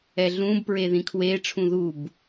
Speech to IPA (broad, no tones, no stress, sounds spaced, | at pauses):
ɛ ɮ ũ b p ɹ e ð ĩ kʰ w e ʈ͡ʂʰ ũ ð u b